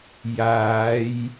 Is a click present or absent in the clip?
absent